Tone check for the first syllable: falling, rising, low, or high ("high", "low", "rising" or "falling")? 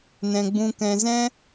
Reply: low